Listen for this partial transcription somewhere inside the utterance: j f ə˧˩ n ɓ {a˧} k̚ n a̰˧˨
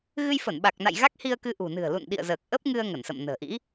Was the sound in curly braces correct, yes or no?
no